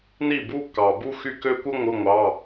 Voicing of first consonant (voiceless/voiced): voiced